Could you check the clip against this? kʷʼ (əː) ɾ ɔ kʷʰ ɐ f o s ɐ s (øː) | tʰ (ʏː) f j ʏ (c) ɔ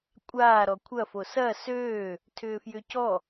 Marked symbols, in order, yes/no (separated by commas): no, yes, yes, yes